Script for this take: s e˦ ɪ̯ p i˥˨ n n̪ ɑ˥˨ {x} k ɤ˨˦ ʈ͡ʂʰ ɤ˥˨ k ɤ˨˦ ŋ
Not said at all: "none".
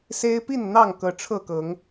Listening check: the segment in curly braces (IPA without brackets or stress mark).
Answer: ŋ